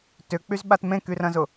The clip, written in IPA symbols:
t ʏ k͡p y z ɓ a t m ẽ k y r ɐ̃ z ʊ

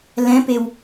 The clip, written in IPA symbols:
l ɛ̃ p e w

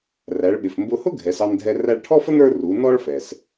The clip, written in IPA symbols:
r æ˩˧ ɭ ɓ ɪ˩ f m b ʊ˧ h ʊ˥ ɡʱ ɛ˩˧ s ɑ˧ n dʱ ɛ˧ r æ˧ ɭ ʈʰ ɔ˥ f ə˥ n ə˞˥ r u˩˧ n ɔ˥ ɭ f ɛ˩ s

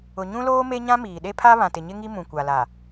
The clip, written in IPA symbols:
ʊ˨ ɲ ũ˦ l oː˦ m e˦ ɲ ã˦ m iː˨ ɗ e˦ pʰ a˦ β ã˨ t ɪ˨ ɲ ɪ˦ ŋ i˦ m ũ˨ kʷ a˨ l a˨

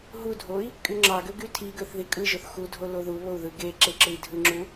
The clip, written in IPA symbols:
ɦ u dʱ o i̯ | kʼ y ŋ͡ǁ ɑ ɡ ø ɡ y tʰ i ɡ ø θ ð i kʼ ɯ ʒ o θ x u dʱ o l o ð u β o u̯ ð ɯ ɡ e ǁ e ǁ ɯ i̯ dʱ ɯ ŋ͡ǁ u

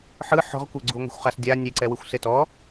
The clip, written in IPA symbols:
ħ ɯ ħ ɔ̤ ʁ kʷ e ɡ͡ǀ u ŋʷ e̤ xʷ χ a s dʲ a nʲ e ǀ ɛ w ɯ xʷ s e t ɔ

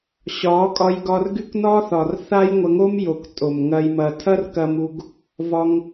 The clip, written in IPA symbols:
ɕ ɒ˨˦ kʼ ɒ˧ j ɡ ɒ˧ r ɡ y˦ k n ɒ˦ θ ɒ˨ r θ a˦ j ŋʷ ɐ˧ ŋ o˦ m j o˨ k tʼ o˨ m ŋ ɐ˧ j m ɐ˨ tʰ ɐ˦ r k ɐ˧ m u˧ ɡ | v ɒ˧ ŋ

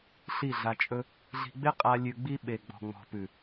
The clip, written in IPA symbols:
ɬ i˦˨ ɮ a˧ t͡ʃʼ ɵ˦ | ɮ i̤˧ ɡ͡b ɪ˦ qʼ a˧ lʲ ʉ˧ ɡ͡b i˦ ɓ e˨ ɡ͡b ɔ̤˨ ŋ͡m ɔ̤˨ p ʉ˨

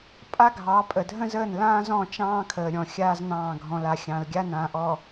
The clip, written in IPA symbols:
pʼ a˦ ɡʱ ɑ˨˦ pʼ ə˨ dʱ ə̃˦ z əː˦˨ n l ãː˦ z ɔ̃˦˨ t͡ʃ ɑ̃ː˦ kʰ əː˨ ɾʲ ɔ̃˨ xʲ aː˦ z n ɑ̃ː˦˨ ɡʱ ɔ̃˨ l a˨ xʲ ɑ̃˨ l ɡʲ a˦ n ãː˨ ʔ ɔ˨

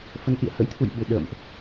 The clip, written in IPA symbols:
f ə˨˦ n ʔ ḭ˧˨ ə̯ h ə̰˧˥ j t̪ʰ ṵ˧˨ j ɓ ɨ˨˩ ɗ ə̰ː˧˨ m ʔ

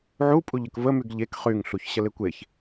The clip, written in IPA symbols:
ʕ u pʼ u ʎ ə k v ə m y ɡ ʎ e k χ y ŋ ɬ u ç ɕ ə l e kʷ e ç

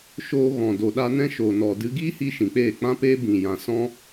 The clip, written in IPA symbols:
ʃ oː˧ ɣ ɔ̃˨ d o˨ ɗ a˧ n ɛ̃˦ ʃ oː˨ n ɔ˨ d ɨ˧ ɡ iː˦ h i˧ ʃ ĩ˨ k͡p eː˦˨ k͡p ã˦ p eː˦ b ĩ˨ j ã˨ s ɔ̃˦

